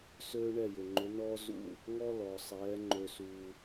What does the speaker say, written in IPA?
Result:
søː˦ ɳɛ˦˨jʏ˨ŋ͡ǃʏ˨˦nɔː˦ zṵ˦˨ | ŋɔ˦lɔ˨sˤɛː˨˦ ŋ͡ǃø˧suː˧

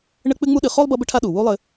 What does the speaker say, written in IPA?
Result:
ɳɘ˦k͡pɨ˦ŋ͡mu˦ ɗɨ˨ χo˥lˠbʌ˦bɘ˦ʈʰa˦ ɗu˩wu˦ lˠɘ˨

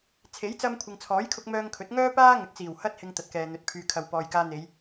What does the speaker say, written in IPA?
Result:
t͡sʰe˨˥jt͡sɐ˧m kʷʰɪ˨ŋt͡sʰɔː˨˥jkʰʊ˧k̚ mœː˧ŋ kʰɵ˨˥t̚ŋœː˥paː˥ŋɵ˨˥t̚ t͡siː˨˩w hɐ˧t̚hɪ˨ŋ t̪ɐ˨˥t̚kɛː˨n̪ɵ˨˥t̚ pʰyː˨kʰɐ˨w pɔː˨jkaː˧n̪e˨˧j

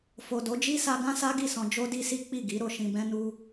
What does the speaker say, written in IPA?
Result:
fo˨do˨˦d͡ʒi˦sa˧ ɡã˦sa˦ɡi˦˨sɔ̃˧ d͡ʒo˦di˦si˦ k͡pi˦˨ɡi˨˦ ɾo˧ʃĩ˧bɛ̃˦ nu˦

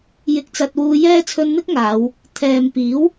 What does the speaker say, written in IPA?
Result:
jɪ˧k̚t͡sɐ˧t̚wuː˧jɛː˥ t͡sʰɵ˧nn̪ɪ˥k̚ ŋaː˨˧w | t̪ʰɛː˨mpiː˨˥w

